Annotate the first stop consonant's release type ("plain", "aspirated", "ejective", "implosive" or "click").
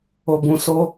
plain